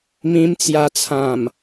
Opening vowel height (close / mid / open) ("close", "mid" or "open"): close